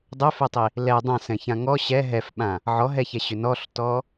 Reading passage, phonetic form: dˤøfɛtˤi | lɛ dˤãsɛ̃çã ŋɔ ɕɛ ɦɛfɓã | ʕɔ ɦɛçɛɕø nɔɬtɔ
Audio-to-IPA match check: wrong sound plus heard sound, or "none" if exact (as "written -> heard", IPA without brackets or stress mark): none